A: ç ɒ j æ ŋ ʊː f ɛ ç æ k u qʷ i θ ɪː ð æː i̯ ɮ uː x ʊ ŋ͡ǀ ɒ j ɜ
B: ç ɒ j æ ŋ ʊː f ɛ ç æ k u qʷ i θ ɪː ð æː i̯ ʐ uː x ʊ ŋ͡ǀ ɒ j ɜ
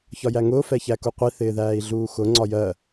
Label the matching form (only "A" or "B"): A